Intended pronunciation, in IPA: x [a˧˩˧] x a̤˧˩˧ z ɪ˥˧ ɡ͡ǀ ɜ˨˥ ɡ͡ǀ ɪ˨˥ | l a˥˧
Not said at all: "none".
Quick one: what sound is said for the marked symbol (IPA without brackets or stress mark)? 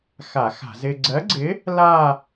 a˧˩˧